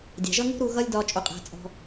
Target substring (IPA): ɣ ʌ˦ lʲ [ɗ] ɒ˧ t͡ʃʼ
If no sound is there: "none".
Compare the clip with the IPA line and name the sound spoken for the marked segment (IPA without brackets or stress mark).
d